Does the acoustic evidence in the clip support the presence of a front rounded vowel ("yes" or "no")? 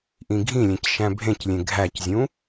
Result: no